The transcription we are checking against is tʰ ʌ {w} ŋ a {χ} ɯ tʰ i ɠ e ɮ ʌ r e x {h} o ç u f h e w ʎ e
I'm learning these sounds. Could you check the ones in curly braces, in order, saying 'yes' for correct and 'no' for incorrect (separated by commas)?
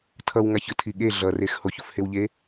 yes, no, yes